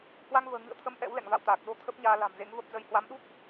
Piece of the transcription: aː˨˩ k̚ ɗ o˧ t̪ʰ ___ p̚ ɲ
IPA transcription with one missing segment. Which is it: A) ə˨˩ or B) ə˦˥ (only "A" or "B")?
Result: B